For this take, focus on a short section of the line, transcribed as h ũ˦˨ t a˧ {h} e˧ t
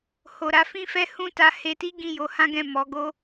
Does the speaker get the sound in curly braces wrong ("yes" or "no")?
no